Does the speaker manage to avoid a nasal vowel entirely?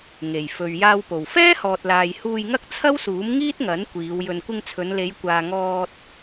yes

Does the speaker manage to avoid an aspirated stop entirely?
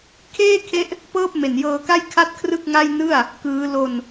no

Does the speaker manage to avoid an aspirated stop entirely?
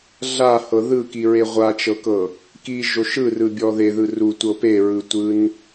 yes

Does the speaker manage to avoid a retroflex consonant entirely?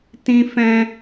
yes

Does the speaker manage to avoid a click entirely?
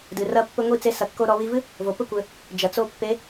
yes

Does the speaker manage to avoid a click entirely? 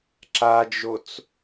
no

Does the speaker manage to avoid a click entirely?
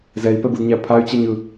yes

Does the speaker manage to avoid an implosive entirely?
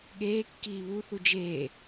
no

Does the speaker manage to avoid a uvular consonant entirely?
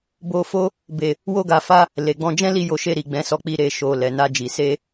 yes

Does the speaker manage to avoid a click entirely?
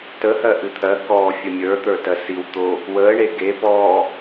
yes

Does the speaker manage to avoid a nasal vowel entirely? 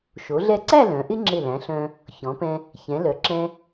no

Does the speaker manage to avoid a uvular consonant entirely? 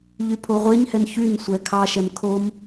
no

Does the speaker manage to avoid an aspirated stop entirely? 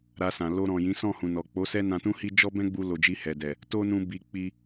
yes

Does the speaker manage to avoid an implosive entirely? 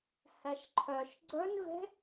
yes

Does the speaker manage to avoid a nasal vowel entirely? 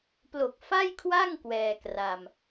yes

